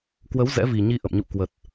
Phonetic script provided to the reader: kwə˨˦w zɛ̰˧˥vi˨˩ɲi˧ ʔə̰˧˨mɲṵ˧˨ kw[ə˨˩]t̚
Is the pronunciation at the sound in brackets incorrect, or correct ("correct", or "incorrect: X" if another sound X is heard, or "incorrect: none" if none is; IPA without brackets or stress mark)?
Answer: correct